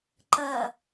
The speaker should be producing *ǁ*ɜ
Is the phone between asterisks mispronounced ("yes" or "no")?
yes